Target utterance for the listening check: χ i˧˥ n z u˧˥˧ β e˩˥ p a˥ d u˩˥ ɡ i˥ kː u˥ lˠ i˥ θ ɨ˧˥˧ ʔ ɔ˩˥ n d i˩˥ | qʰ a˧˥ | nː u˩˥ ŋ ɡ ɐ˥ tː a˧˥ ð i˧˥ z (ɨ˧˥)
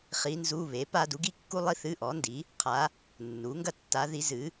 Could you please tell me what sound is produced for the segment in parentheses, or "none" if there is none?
ɨ˩˥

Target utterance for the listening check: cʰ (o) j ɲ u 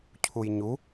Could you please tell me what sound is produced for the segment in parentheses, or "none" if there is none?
u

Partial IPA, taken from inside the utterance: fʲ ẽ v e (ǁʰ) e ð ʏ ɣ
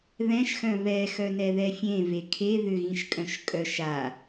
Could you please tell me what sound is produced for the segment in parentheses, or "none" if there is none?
kʰ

